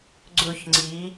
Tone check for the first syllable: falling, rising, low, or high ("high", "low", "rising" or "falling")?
falling